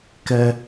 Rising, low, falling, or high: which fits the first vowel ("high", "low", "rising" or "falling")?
high